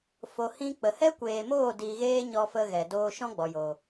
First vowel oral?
yes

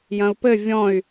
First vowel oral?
no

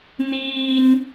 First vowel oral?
yes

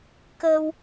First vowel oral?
yes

